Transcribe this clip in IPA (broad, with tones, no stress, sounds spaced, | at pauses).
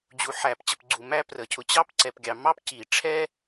d͡ʑ u˨ ħ æ˨˩˦ p t͡ɕ ə˨ p ɡ͡ǀ u˨ m æ˥ p r ə˨˩˦ cʰ ʊ˨ t͡ɕ ɑ˥ p ǀ ɛ˨ p ɡʲ ɑ˨ m ɑ˥ p c i˨˩˦ ʈ͡ʂʰ ɛ˥